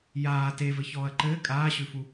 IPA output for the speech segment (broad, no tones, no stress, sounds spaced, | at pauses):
j aː t e v ɘ ç ɔː ɐ̯ ǃ ɘː kʼ aː ɕ ʉ f u